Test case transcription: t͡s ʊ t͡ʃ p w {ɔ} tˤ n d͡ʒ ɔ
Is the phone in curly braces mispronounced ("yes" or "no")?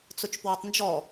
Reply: no